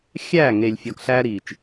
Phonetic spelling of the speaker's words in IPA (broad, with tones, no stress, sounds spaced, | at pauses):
xʲ æː˦˨ ŋ e˨ lʲ fʲ ɒː˨ k ɬ æː˦ ɾ iː˨ t͡ʃ